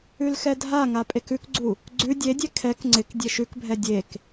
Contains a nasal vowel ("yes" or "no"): no